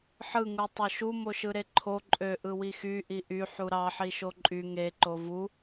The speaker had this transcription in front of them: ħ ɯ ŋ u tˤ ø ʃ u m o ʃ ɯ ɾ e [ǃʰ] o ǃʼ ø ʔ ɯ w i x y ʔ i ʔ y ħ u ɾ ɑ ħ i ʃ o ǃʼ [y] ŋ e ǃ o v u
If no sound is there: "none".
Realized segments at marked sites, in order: ǃʰ, y

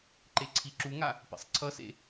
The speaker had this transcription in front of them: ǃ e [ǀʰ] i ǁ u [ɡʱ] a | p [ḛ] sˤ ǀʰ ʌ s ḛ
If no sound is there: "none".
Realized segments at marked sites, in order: ǀʰ, ŋ, ḛ

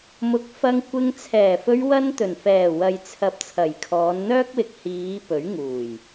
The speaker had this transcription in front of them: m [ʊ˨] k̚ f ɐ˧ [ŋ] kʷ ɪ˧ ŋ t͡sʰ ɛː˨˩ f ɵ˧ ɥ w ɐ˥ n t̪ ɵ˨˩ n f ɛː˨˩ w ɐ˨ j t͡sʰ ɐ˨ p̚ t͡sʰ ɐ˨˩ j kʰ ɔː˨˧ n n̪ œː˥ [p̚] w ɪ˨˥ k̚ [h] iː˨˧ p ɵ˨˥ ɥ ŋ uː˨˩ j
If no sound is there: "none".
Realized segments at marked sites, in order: ʊ˨˥, ŋ, k̚, h

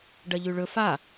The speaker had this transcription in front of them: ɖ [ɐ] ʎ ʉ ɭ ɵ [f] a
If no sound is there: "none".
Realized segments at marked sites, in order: ɐ, f

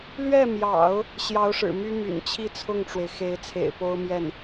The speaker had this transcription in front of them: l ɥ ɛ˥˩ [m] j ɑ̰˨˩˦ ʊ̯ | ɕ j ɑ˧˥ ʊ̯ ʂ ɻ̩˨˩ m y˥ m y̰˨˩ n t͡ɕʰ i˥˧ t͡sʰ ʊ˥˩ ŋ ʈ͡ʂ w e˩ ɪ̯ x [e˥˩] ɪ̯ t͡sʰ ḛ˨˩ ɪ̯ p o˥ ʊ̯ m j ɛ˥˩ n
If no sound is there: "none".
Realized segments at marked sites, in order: m, e˧˥

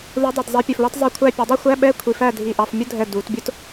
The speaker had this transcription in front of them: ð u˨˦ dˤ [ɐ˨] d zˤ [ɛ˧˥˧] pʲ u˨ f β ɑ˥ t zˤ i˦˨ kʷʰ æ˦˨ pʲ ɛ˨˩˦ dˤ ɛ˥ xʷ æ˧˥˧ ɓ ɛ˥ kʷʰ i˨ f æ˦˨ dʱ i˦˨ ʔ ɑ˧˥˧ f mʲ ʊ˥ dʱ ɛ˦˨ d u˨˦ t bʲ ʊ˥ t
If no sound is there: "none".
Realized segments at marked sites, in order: æ˨, ɛ˨˦

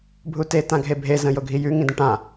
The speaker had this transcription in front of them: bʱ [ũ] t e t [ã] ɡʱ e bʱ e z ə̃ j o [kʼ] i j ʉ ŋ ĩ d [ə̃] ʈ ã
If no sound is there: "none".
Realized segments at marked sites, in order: u, ã, ɡʱ, ə̃

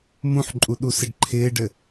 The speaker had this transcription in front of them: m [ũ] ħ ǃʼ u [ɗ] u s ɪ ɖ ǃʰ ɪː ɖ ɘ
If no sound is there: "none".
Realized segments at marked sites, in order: ũ, ɗ

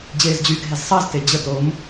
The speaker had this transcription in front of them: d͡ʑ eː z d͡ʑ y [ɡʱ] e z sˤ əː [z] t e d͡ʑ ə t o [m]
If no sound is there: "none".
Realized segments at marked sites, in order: ɡʱ, z, m

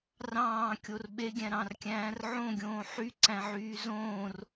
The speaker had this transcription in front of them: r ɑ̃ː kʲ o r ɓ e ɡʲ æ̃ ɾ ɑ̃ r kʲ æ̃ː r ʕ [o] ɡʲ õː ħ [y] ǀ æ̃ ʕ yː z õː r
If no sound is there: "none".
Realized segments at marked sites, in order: õ, y

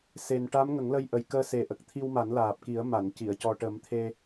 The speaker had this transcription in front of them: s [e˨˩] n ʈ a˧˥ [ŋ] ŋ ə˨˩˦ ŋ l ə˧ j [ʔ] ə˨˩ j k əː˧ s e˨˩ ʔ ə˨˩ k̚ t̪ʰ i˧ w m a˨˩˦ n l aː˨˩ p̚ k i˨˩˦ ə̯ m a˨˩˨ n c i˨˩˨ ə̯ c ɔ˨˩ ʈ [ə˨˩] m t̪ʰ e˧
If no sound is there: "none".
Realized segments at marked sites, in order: e˨˩, m, ʔ, ə˨˩˦

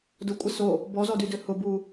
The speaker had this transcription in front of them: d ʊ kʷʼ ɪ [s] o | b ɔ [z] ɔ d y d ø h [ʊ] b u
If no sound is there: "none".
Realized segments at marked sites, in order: s, z, ʊ

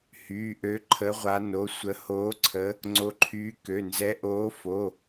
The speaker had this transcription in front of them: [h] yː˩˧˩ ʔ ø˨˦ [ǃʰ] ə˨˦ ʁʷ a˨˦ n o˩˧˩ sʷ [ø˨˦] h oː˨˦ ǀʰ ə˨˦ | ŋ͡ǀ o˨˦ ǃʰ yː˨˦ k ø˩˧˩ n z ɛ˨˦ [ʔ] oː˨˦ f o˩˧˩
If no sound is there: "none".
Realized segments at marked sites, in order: h, ǃʰ, ə˨˦, ʔ

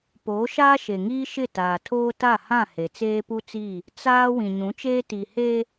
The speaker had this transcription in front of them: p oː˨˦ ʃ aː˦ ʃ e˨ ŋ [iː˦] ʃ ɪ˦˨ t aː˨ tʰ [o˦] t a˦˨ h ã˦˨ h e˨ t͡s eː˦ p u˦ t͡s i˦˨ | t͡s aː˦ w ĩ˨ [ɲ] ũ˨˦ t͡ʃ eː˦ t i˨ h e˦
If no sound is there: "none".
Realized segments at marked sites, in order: iː˦, oː˦, ɲ

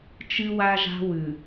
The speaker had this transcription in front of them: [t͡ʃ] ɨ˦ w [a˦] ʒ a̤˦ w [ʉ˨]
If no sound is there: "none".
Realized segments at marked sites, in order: t͡ʃ, a˦, ʉ˨

